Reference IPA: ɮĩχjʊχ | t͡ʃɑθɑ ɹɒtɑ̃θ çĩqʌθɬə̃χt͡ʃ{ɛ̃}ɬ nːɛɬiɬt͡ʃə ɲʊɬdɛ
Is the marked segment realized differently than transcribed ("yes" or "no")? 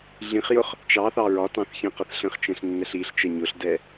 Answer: no